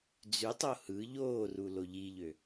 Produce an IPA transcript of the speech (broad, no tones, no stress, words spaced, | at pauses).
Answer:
d͡zytˤo hɯ ʎoːrulo ʎiʎø